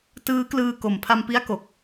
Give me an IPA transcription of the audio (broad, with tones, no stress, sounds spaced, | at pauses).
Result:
t ɯː˦˥ k l ɯː˧ k o˨˩ m pʰ a˧ m p i˦˥ a̯ k o˨˩ k̚